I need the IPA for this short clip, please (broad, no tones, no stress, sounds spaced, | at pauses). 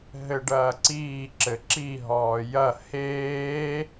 ɦ ɘ ɖ ɐː ǀ iː ǁ ɘ ǁ i ɦ ɔː j ɐ h eː